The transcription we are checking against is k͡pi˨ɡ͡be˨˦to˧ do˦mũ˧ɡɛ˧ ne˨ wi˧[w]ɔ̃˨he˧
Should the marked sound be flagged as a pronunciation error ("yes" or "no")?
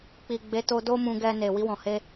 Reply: no